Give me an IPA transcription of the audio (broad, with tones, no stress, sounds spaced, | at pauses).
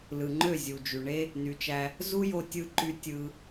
l ɯ˨ ŋ͡ǃ ø˦˨ zʲ u˨ d͡ʒ y˨ ɳ e˧ | n y˨ t͡ʃ æ˧ | z u˦ j o˧ tʲ ɯ˧ ǃ y˧ tʲ ɯ˧